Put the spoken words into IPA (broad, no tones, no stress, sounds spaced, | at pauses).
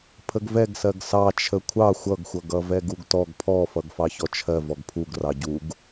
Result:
pʰ ə ɡ v ɛ ɡ s ɜ ɡ s ɑ t͡ʃʰ ə kʷʰ ɑ xʷ ʌ ɡ xʷ ʌ ɡ ʌ v ɛ ɡ u ɡ t ɔ ɡ pʰ ɔ f ʌ ɡ f ɑ ç ɔ t͡ʃʰ ɜ v ɔ ɡ pʰ u ɡ r ɑ ɟ u ɡ